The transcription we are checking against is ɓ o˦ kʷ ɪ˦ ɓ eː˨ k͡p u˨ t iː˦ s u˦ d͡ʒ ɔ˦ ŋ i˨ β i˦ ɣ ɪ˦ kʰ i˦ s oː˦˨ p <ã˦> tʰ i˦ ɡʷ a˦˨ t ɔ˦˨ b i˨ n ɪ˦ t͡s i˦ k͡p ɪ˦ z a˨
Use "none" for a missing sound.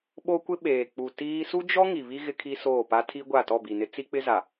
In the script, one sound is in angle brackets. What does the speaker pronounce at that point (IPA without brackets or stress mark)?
a˦